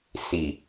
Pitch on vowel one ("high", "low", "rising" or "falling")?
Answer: low